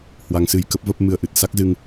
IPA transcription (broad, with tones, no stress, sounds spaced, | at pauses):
h w a˧ ŋ s ɨ˧ j k ə˦˥ p̚ v ə˦˥ p̚ m ɨ˧ ə̯ ʔ ɨ˨˩ t̚ s a˦˥ k̚ z ɨ˧ ŋ